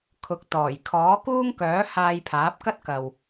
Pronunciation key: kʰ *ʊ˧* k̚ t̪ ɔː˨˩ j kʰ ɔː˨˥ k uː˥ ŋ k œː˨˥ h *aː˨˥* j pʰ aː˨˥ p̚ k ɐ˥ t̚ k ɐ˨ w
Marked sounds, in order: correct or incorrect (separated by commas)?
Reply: incorrect, incorrect